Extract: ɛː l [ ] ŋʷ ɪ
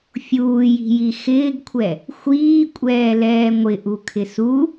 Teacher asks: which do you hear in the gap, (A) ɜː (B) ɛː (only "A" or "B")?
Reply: B